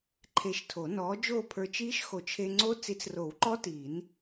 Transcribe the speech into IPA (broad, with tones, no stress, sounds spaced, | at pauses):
ǃʰ eː˧ ʃ tʰ o˨˩˦ n ɔː˨˥ d͡ʒ oː˥˧ pʰ ə˞˧ t͡ʃ iː˦˥ ʃ x o˨˩˦ t͡ʃʰ e˧ ŋ͡ǀ o˦˥ t͡s i˨˥ t͡s r o˨˩˦ w ǃ ɔ˦˥ t iː˨˩˦ n